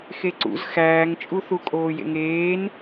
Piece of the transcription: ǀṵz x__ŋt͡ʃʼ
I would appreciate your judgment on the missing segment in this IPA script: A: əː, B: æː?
B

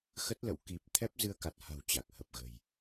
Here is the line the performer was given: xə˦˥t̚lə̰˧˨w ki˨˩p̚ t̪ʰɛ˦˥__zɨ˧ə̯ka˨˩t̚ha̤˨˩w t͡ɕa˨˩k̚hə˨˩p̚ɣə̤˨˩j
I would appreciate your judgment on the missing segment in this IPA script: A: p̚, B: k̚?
A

